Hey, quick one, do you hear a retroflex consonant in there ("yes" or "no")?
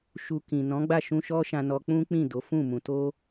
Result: no